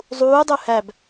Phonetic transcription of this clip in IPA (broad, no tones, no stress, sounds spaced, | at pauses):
zˤ uː dˤ u h æ b